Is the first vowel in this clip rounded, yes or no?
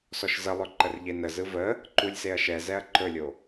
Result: yes